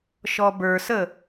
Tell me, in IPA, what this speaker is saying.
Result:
ʃ ɔ b ə˞ s ə

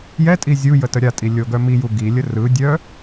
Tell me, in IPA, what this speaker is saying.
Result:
j ɛ tʼ i zʲ u j ə t ə ɾʲ a tʼ i lʲ o ɡ œ m i j u ɡ i lʲ ə r ɯ dʲ œ

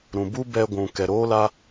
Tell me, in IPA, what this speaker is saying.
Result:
ɾ ũ˨ b u˦ b ɛ˧ ɡʷ ũ˨ k ɛ˨ ɾ oː˦ l a˦

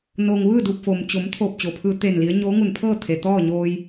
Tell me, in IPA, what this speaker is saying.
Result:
n o˩ ŋ ʋ ɯː˥˨ d u˧˩ p̚ f o˩ m t͡ɕ o˩˧ m t̪ʰ oː˧˩ p̚ t͡ɕ o˩ pʰ ɯː˧ t̪ e˧˩ n l i˩˧ ə̯ ɲ oː˧˥ ŋ u˧˩ n pʰ ɤː˥˨ t̪ʰ e˩ t̪ ɔː˥˨ ɲ oː˧ j

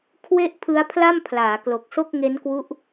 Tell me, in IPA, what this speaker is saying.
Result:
kʰ w e˥˩ ʔ pʰ ɯ˦˥ a̯ pʰ l a˥˩ m pʰ l aː˩˦ k l o˨˩ k̚ s o˥˩ k̚ ŋ e˦˥ n k w u˦˥ ʔ

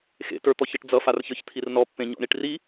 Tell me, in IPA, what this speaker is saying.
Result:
x ḛ t ə˞ t̪ ɔ ç ʌ ʈ d͡z ʌ f a r ç ə˞ ç t̪ʰ i r n ɔ pː ẽ ɲ ɔ̰ ɳ i ʈ r i

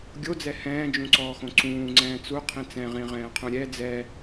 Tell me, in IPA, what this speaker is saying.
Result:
ɡʲ o d͡z ɛ h ɛ̃ː d͡ʒ ũ ǀ ɔː x õ ǀ ũː ŋ͡ǀ ɛ̃ː t͡s u qʰ ĩ t͡s ɛ̃ ʁ ĩ ʁ ɛ̃ː qʰ ũ ɾʲ ɛ d͡z ɛ

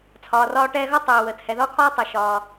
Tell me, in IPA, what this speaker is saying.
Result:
t͡sʰ ɒː˩ r ɒː˧ ʈ ɛ˧ ɣ ɒ˥ tˤ ɵː˩ w əː˩ t h ɛ˩ ð ɒ˥ kʰ ɒː˥ tˤ əː˩ ʃ ɒː˩

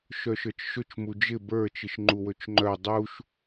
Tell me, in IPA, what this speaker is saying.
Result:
ʃ œ ʃ ə˞ t͡ʃ ʃ ɵ t͡ʃ m u d͡ʒ ɪ b ə˞ t͡ʃ ɪ ʃ ŋ͡ǃ u w ɵ t͡ʃ ŋ͡ǃ œ dˤ u ʃ

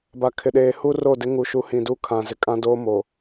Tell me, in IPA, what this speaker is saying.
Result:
b a˨ kʰ ɪ˨ ɗ eː˨ h u˦ r o˦˨ d ɪ˦ ŋ u˨ ʃ u˨˦ h ĩ˨ d u˦ kʰ ã˨ z ɪ˨ kʼ ã˦ d oː˦ m o˨

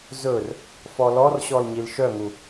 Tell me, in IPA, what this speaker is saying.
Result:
z ɵ r | f ɔ l ɔ r ɕ ɔ l ɲ i l ʃ œ ŋ u

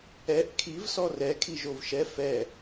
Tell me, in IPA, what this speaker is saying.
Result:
ɛ ʔ kʰ i v s ɔ r ɛ kʰ i ʒ o v ʃ ɛ f ɛ

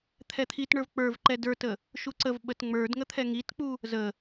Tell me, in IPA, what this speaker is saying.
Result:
t̪ʰ ɛ t̪ʰ i t ɳ ə˞ v k͡p ə˞ v ǃ ɛ d ə˞ t ə | ʃ u ǀ ə v ɓ ə t ŋ͡m ə˞ d ŋ ə t̪ʰ ɛ ŋ i t k͡p u | z ə

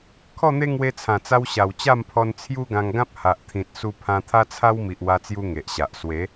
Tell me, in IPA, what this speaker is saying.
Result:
kʰ ɔ˥˧ n̪ e˦ ŋ w e˧ t͡sʰ ã˨˩ t͡s a˧ w ɕ a˨˩ w t͡ɕ a˥˧ m pʰ ɔ˧ n t͡sʰ j u˦ ɡ ã˧ ŋ ɡ ã˦ p̚ h a˨ ʔ t̪ʰ ĩ˨ t̚ s u˧ pʰ ã˧ t̪ʰ a˦ t͡sʰ a˦ w m i˨ ʔ w a˧ t͡s j u˧ ŋ e˨ ʔ ɕ a˨ ʔ s w e˨˦

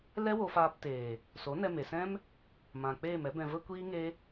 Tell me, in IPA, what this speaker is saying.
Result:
l ɛ˦ w o˧ f aː˧ p t eː˨ | s o˨˦ n ɛ˧ m e˨ s ɛ̃˦ m | m ã˨ k͡p eː˦˨ m ɛ˦ b ɛ̃˧ v ə˦ kʷ iː˦ ŋ e˦

